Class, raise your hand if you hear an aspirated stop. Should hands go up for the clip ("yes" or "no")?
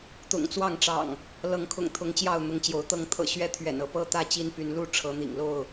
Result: yes